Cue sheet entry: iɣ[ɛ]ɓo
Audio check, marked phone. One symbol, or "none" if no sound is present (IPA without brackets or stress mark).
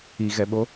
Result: ɛ